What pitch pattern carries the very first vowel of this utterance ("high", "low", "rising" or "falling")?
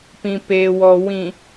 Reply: low